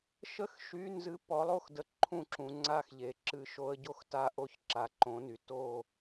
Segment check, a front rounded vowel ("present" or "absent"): present